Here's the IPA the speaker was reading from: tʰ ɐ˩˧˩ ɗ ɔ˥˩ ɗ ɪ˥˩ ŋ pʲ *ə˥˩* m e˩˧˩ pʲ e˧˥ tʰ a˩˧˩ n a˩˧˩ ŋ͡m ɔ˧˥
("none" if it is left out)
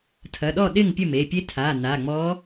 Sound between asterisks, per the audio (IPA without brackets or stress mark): ə˥˩